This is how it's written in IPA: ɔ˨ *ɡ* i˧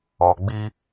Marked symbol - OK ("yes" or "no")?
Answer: no